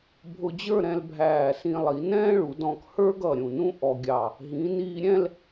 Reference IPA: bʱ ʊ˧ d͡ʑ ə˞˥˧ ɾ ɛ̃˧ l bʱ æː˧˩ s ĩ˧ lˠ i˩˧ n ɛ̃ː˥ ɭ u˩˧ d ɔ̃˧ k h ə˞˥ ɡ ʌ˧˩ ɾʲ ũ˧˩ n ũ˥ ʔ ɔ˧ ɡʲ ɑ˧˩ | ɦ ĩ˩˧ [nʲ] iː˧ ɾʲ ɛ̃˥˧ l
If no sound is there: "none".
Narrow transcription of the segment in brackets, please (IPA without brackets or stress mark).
n